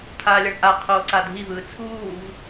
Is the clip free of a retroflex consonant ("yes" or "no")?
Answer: no